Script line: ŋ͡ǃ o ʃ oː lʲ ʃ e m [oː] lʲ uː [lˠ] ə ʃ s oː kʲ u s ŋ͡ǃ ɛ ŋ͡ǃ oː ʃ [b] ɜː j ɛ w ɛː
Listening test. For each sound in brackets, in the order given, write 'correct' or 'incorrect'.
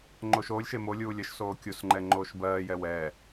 incorrect, incorrect, correct

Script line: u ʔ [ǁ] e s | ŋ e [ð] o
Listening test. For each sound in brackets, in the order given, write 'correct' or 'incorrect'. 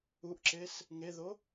correct, correct

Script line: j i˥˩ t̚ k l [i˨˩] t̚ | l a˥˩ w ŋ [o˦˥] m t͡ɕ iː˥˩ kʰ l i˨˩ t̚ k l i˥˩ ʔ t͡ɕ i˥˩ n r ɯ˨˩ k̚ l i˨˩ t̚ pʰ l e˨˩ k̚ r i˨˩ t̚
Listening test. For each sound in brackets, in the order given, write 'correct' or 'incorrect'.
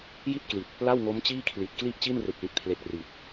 correct, correct

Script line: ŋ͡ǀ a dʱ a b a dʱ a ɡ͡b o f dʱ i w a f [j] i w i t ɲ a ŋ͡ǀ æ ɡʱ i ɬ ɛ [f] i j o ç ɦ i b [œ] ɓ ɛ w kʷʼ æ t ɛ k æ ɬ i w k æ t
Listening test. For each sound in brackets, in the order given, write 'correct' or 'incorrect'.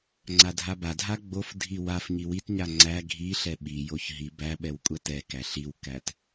incorrect, incorrect, incorrect

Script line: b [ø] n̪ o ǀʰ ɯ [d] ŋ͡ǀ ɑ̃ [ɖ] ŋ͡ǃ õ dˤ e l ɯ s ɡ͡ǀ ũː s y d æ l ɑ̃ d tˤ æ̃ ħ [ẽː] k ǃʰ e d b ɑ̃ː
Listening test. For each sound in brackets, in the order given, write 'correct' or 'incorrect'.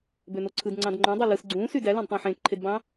correct, correct, incorrect, correct

